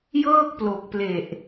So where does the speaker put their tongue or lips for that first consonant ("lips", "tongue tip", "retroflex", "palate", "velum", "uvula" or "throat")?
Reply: palate